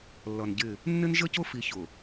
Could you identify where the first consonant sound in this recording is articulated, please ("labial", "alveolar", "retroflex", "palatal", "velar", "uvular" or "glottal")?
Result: alveolar